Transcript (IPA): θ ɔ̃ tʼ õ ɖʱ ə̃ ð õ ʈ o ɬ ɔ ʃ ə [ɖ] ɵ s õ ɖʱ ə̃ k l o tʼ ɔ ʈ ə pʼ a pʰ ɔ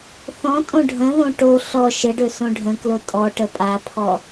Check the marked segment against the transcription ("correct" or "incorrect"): correct